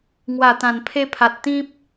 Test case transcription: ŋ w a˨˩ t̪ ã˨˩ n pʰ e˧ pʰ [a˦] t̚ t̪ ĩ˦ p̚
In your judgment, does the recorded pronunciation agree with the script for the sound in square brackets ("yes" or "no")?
no